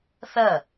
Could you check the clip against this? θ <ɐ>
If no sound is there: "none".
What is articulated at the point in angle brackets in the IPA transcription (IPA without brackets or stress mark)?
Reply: ɐ